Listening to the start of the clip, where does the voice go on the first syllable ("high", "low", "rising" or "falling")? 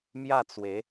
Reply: falling